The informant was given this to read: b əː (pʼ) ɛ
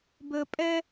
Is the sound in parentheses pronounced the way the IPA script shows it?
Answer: yes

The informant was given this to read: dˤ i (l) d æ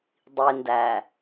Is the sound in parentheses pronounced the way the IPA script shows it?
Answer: no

